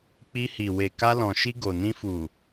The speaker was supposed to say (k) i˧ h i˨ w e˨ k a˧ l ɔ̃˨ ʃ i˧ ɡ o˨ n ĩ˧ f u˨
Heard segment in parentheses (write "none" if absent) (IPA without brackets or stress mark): k͡p